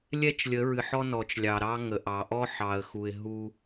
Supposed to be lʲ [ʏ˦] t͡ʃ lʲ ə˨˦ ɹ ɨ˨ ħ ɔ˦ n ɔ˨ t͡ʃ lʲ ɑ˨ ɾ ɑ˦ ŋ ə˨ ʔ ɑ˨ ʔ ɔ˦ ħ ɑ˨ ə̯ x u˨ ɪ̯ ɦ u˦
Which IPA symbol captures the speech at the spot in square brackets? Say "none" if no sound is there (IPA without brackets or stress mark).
ɛ˦